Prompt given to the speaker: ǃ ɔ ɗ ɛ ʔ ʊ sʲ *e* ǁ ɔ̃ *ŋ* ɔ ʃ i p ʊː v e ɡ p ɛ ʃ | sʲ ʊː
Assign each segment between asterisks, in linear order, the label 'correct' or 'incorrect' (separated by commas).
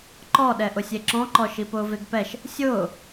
correct, incorrect